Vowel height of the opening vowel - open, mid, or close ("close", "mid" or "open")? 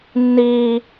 close